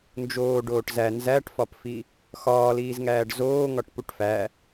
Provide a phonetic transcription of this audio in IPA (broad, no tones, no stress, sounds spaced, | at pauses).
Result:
n d͡ʒ oː ɖ oː ʈ z æ n z æ ʈ f ɒ p f i | x ɒː l iː z ŋ æː ɖ z oː ŋ ɒ ʈ p u ʈ f æ